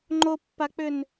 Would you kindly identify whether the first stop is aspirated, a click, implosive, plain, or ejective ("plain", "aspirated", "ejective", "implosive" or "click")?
click